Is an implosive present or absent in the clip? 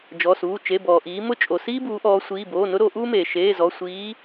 absent